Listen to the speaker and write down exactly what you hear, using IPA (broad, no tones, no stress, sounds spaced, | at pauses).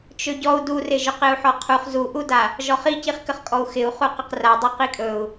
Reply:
t͡ʃ ɵ ɟ ɔ u̯ d u r ɪ ʒ ɵ q ɪ u̯ ħ ɔ qʰ u χ z u ʔ u d a | ʒ ɔ χ i c i χ k ə χ kʼ ɔ u̯ x ɪ u̯ χ u q ə q r a dˤ u q i kʼ ɵ u̯